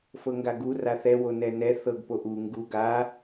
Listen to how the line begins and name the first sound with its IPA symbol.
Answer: f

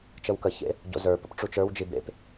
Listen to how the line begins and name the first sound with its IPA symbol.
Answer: t͡ʃ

